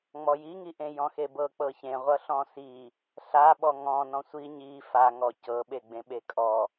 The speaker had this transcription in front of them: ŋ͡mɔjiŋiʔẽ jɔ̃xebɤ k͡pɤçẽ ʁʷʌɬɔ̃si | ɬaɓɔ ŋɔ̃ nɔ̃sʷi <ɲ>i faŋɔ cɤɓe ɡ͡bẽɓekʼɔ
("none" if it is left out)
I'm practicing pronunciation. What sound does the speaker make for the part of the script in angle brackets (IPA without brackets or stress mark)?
ɲ